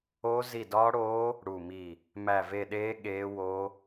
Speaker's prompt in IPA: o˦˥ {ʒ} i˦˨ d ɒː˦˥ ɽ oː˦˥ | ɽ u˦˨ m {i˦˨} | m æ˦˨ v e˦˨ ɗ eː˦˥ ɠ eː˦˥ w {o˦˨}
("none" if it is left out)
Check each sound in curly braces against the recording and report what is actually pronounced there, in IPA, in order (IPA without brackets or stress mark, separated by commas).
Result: z, i˦˨, o˦˥